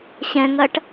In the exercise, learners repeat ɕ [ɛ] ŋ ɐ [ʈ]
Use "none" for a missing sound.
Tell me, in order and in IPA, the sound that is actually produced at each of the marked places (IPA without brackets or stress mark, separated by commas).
ɛ̃, ʈ